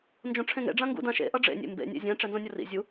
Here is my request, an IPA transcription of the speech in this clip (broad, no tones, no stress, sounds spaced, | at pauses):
n d͡ʒ õ ʈ͡ʂʰ ẽ ŋ ḛ ɖ͡ʐ ã ŋ ɡ ṵ d ã ʃ ḛ ʔ ʌ ɖ͡ʐ ḛ nʲ ḛ m b ḛ nʲ ḛ zʲ ɛ̃ ʈ͡ʂ ɛ n z õ nʲ ʌ r ḭ zʲ u